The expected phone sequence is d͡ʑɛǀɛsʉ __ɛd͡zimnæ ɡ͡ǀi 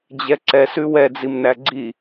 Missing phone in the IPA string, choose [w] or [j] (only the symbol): w